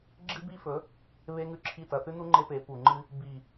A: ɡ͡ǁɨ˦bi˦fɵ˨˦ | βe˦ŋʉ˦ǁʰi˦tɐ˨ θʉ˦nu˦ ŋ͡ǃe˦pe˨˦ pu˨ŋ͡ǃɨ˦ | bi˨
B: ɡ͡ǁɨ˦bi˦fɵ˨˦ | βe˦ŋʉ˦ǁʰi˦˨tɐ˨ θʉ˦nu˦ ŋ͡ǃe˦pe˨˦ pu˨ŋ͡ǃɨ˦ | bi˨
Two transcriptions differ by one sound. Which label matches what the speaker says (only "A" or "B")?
B